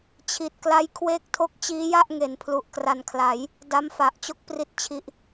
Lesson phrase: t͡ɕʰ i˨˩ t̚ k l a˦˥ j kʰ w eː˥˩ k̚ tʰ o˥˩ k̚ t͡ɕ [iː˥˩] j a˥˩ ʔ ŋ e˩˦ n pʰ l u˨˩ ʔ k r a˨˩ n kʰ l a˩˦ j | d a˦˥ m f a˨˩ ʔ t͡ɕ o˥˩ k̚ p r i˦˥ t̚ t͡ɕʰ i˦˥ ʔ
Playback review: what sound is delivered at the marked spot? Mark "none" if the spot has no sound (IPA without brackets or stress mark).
iː˦˥